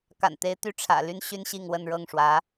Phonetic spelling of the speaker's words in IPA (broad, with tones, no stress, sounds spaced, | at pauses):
k a̰˨˩ n t̪ e˧˥ ɪ̯ t̪ y˥˩ ʈ͡ʂʰ ä̰˨˩ l y˥ n ɕ y˥ n ɕ i˥˧ ŋ w ə˥˧ n ɻ ɤ˥˩ ŋ ʂ w ä˧˥